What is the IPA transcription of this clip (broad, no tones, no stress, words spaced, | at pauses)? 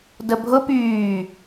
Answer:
dəbʱʊ pyː